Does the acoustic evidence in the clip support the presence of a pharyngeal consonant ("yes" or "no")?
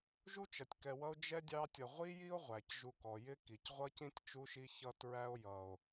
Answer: no